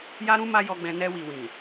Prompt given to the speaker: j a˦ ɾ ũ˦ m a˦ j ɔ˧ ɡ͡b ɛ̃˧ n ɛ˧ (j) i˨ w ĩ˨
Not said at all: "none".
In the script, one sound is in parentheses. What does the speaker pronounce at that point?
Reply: w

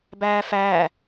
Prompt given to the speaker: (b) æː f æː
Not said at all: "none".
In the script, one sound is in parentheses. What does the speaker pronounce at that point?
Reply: b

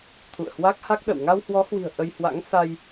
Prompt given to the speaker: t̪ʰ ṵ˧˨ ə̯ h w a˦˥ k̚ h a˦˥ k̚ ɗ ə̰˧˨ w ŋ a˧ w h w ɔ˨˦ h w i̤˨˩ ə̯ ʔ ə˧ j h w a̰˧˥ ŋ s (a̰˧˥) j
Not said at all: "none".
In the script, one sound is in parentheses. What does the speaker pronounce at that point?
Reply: a˧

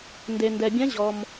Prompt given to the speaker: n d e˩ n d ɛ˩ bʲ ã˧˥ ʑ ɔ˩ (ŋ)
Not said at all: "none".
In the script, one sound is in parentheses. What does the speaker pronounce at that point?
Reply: m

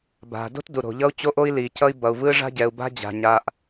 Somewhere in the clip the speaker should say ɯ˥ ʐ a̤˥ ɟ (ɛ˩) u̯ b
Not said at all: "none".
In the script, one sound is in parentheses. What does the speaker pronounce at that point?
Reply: ɛ˩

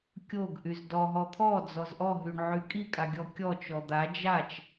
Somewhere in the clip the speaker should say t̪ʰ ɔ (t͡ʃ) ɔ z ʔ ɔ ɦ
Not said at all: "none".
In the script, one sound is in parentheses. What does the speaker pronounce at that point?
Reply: d͡z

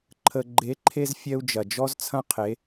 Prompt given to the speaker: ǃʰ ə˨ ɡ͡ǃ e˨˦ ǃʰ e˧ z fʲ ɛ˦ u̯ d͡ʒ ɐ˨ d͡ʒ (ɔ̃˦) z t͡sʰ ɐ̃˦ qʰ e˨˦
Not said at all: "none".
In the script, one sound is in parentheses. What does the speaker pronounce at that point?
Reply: ɔ˦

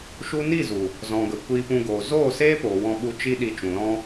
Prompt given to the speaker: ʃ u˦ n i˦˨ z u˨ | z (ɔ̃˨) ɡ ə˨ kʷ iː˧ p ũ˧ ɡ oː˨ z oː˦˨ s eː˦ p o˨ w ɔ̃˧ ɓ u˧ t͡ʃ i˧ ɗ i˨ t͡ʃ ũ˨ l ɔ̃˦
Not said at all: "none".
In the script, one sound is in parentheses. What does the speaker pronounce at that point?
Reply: ɔ̃˨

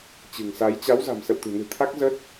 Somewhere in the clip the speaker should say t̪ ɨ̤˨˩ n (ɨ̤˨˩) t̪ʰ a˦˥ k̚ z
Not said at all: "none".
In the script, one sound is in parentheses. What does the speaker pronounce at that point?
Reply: ɨ̤˨˩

